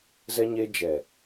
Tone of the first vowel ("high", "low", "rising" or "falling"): high